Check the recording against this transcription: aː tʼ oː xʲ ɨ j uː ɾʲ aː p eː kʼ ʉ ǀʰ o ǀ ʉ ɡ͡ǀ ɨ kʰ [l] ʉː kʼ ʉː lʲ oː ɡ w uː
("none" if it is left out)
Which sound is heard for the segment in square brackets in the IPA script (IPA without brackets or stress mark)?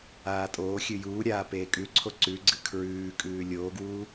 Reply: ɹ